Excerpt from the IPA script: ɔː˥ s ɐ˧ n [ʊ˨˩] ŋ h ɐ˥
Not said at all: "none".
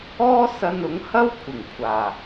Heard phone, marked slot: ʊ˨˥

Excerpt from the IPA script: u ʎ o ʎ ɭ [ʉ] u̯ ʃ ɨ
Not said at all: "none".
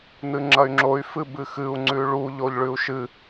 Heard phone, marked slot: ʉ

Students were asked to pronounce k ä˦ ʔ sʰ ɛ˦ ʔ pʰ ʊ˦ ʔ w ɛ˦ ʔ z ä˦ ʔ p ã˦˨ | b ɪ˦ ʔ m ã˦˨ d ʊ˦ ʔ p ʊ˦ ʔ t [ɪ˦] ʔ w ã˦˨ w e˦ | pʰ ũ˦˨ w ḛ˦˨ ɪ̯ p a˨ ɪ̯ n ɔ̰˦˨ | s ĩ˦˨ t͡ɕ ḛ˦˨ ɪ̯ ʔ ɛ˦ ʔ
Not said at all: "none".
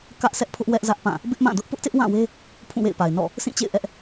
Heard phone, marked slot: ɪ˦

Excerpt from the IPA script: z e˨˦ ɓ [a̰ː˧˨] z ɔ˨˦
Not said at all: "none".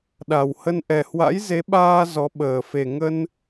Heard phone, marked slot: aː˧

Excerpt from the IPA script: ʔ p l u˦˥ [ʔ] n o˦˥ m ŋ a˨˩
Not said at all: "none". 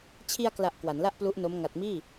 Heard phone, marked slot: ʔ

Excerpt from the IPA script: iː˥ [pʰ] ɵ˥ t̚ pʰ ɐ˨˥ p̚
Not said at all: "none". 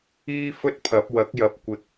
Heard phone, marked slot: f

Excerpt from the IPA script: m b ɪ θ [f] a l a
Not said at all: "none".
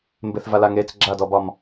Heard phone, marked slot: v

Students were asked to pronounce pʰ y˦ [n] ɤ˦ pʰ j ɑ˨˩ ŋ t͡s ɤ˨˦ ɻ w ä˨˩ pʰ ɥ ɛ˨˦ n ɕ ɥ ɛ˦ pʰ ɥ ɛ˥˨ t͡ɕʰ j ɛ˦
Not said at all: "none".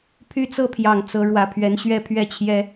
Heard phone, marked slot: t͡s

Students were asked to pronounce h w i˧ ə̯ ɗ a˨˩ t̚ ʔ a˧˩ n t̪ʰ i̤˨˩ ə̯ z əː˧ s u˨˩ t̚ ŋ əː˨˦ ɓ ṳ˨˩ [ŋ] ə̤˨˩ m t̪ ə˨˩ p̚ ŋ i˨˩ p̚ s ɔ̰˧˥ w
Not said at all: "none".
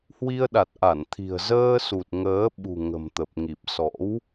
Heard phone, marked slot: ŋ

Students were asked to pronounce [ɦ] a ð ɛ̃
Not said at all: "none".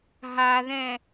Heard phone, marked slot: ɦ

